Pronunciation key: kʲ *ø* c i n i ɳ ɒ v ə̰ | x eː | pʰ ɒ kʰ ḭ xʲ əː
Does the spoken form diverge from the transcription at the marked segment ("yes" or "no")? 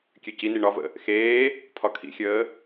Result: no